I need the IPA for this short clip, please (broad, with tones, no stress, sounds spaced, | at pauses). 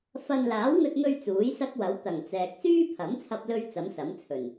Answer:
f ɐ˧ n l aː˨˥ w ŋ ɵ˧ t̚ ŋ ɵ˧ ɥ t͡s uː˨˥ j s ɐ˥ k̚ w ɐ˨˥ w t̪ ɐ˨˩ ŋ t͡s ɛː˨ k̚ s yː˥ pʰ ɐ˨˥ m t͡sʰ ɐ˧ p̚ l ɵ˧ ɥ t͡s ɐ˨˥ m s ɐ˨˥ m t͡sʰ ɵ˨˩ n